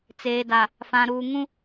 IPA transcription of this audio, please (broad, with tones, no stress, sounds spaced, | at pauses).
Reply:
t͡s eː˨ d a˨ | f ã˨ ɾ uː˨ ŋ ũ˦